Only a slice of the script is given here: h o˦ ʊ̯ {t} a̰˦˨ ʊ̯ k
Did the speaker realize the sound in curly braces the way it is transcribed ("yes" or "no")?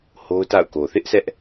yes